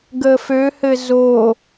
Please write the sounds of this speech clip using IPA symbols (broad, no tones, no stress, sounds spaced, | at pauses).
ɡ ə f ø h ɘ z o